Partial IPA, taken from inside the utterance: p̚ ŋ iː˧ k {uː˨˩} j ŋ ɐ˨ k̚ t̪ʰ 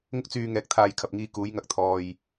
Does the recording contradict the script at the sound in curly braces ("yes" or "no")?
yes